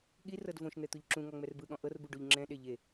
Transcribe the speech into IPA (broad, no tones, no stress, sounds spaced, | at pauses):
ɠ i r ɤ d v õ ʃ n̪ ɛ t̪ u ʎ ǁ ũ ŋ ɔ ŋ͡m ɛ r b ɯ ɠ ɔ̃ ʔ ɤ r b u ɖ u ʎ ŋ͡ǁ ɛ̃ ɗ e ʎ e